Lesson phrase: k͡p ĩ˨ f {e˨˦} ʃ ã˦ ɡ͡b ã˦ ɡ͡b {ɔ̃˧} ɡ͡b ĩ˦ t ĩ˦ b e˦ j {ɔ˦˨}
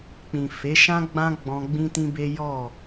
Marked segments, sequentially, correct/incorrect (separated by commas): correct, correct, correct